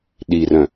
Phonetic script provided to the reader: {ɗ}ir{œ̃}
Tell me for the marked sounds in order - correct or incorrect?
correct, correct

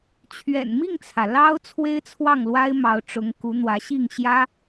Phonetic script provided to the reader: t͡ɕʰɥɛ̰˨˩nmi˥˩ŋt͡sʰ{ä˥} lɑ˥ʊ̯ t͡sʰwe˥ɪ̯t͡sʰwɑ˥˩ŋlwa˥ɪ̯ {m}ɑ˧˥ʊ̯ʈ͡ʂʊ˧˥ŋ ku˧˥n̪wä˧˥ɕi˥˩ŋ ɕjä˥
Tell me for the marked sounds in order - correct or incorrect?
incorrect: ä˩, correct

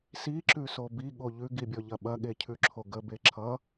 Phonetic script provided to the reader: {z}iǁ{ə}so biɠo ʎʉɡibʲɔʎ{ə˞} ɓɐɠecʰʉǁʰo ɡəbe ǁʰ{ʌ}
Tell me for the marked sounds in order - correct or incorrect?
incorrect: s, incorrect: ʉ, incorrect: ɐ, correct

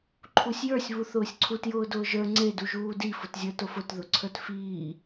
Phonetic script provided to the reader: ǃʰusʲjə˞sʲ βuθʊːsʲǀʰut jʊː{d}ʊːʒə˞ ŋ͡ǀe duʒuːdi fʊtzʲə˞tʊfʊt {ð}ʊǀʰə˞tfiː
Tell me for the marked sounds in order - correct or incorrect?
correct, correct

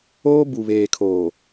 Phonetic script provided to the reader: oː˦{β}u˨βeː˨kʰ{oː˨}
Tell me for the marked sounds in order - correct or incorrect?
incorrect: b, correct

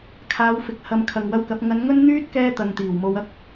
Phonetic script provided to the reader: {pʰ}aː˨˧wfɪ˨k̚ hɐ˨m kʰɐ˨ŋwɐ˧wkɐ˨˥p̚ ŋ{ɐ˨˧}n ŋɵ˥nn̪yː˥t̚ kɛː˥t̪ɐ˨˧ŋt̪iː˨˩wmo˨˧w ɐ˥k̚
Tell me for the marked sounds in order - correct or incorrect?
incorrect: kʰ, correct

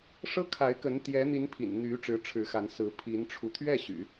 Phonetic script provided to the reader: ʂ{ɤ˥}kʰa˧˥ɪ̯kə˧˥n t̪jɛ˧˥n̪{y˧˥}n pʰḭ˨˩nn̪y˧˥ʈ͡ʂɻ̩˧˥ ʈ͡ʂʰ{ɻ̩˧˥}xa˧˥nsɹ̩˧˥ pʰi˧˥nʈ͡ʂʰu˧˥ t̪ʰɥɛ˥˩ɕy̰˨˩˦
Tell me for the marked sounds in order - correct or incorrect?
correct, incorrect: i˧˥, correct

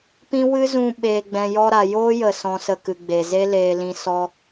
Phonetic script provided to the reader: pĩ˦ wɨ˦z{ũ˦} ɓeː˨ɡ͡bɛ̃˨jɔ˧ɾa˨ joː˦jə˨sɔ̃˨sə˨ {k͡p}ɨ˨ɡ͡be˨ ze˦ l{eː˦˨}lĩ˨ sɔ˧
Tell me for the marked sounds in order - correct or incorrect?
incorrect: ũ˧, incorrect: k, incorrect: eː˨

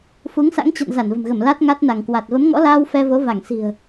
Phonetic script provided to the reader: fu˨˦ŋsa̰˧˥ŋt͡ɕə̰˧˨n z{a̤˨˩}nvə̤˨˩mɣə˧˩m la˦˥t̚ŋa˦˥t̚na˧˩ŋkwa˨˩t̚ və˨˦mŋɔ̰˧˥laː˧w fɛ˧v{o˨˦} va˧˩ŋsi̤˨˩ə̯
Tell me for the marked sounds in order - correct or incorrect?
incorrect: a˧˩, correct

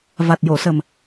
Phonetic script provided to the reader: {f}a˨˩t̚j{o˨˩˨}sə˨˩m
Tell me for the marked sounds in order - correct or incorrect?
incorrect: v, correct

